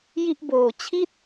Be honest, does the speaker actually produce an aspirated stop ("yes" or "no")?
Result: yes